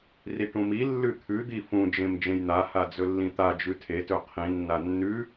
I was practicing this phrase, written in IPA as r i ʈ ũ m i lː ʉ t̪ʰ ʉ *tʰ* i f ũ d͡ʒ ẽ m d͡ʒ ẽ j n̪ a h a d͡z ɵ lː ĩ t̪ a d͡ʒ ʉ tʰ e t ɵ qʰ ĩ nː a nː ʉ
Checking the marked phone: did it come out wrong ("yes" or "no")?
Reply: yes